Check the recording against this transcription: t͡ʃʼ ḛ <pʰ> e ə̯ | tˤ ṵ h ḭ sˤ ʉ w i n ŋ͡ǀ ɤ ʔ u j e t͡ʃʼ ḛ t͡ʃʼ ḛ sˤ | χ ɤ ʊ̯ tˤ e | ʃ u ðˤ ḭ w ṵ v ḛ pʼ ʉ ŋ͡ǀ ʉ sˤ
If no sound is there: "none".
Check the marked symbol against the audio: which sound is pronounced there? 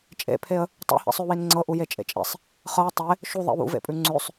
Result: pʰ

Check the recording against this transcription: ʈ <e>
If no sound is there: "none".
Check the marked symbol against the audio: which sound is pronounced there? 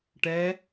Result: ɛ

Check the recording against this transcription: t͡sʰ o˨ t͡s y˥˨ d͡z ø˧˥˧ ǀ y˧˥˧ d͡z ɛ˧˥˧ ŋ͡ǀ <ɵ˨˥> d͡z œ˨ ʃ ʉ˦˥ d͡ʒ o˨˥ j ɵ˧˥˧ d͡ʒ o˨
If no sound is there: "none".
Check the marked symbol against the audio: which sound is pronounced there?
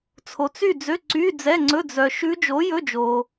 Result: ɵ˧˥˧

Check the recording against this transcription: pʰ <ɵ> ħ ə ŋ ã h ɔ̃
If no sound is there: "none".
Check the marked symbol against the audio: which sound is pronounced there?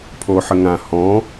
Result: o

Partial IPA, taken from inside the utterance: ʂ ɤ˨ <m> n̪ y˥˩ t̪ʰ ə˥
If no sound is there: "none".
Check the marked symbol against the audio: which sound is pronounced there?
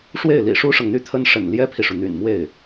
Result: ŋ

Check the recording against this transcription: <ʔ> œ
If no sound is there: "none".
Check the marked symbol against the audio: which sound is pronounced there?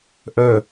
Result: ʔ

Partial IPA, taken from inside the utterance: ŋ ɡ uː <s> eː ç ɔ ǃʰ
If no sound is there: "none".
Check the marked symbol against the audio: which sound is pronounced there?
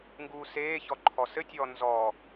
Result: s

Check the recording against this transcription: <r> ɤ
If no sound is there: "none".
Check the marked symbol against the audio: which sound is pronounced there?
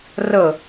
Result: r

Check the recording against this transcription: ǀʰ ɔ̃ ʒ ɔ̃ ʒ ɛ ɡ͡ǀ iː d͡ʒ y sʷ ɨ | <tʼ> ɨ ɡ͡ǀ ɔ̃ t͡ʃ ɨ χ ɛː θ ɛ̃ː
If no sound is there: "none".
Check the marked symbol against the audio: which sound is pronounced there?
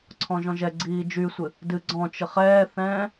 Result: d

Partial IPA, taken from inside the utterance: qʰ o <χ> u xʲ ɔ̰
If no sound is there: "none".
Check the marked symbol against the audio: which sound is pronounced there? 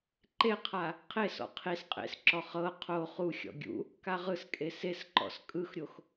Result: χ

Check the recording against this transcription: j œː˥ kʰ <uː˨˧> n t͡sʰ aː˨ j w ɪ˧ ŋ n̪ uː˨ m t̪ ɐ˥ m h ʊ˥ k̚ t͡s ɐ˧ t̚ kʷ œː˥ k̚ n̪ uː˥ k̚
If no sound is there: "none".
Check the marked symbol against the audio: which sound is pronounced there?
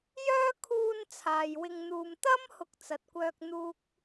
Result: uː˧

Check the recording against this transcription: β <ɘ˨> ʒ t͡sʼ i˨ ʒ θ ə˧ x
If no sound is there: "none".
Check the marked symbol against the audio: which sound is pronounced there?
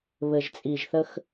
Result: ɘ˨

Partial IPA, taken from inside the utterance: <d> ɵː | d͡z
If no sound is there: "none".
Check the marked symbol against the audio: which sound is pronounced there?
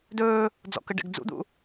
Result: d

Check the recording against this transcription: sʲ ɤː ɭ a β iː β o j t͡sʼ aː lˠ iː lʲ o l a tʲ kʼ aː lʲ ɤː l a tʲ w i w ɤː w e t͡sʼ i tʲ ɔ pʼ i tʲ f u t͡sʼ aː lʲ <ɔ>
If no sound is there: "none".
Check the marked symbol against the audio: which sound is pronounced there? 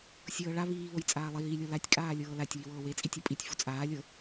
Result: ɤ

